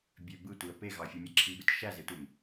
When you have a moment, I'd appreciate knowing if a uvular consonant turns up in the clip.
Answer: no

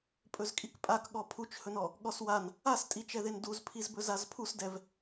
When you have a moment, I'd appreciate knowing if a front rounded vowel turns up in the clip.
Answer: no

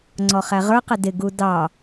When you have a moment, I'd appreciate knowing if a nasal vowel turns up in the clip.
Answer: no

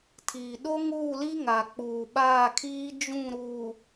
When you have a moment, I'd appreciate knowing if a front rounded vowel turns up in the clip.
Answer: no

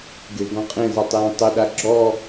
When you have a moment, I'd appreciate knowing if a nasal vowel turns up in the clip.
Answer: yes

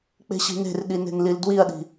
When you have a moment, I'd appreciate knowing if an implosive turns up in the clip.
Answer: yes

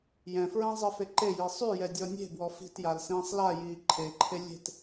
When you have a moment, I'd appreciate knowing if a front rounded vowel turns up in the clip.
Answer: yes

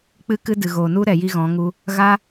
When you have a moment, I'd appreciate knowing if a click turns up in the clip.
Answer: no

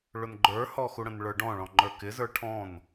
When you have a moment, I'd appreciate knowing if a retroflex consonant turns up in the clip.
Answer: yes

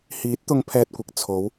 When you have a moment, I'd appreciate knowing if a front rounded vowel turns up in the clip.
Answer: no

